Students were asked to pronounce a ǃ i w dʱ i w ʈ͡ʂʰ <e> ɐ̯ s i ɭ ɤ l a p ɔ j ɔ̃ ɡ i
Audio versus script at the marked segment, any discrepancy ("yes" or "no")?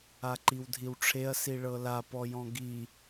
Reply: no